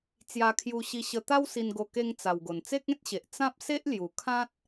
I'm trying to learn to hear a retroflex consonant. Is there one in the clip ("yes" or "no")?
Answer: no